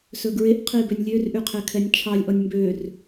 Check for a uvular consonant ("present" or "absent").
present